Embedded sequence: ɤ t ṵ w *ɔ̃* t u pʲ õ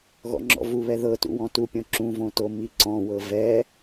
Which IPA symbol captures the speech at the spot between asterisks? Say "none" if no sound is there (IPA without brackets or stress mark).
ɔ̃